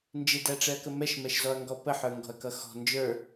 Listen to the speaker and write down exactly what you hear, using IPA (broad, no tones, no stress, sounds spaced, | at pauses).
n d͡ʒ ɪ d æ ʈ͡ʂ ɛ ɐ̯ k ə m ɛ ʃ m ɛ ʃ z ɔ ɐ̯ ŋ ɡ ɔ p ə ħ ə˞ ŋ ɡ ɔ̤ ɐ̯ k ʌ x ɔ̤ n d͡ʒ ə˞